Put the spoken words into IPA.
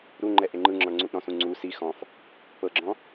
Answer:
ɾ u ŋ͡ǃ ɛ ʔ e ŋ͡ǃ ɯ ŋ͡ǁ ɔ̃ ɳ ŋ͡ǀ u ʔ ɾ ɔ̃ s ũ ŋ͡ǀ u s i x ɔ̃ f | p ɤ ɡ͡ǁ ɔ̃

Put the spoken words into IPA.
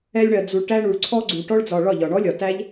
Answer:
ɛ˧ lʲ ɳ ɜ˨ d͡z u˨ ɭ ʈ æ˧ ɳ u˨ ɭ ǀʰ ɔ˧ ɡ͡ǀ u˨ ʈ ɔ˧ ɭ d͡z ɒ˨ ɭ ɒ˦˨ ʎ ɒ˨ ɳ ɔ˦ lʲ ɒ˨ t æ˦ ʎ

